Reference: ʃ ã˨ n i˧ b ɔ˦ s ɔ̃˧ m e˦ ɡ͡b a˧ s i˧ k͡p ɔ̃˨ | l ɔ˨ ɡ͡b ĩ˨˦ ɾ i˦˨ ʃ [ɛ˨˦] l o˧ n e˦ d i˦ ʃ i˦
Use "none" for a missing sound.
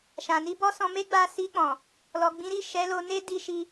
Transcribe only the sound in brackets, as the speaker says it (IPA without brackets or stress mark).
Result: ɛ˨˦